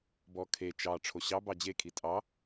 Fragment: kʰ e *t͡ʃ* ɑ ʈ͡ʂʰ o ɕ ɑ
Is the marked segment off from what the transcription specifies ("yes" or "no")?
no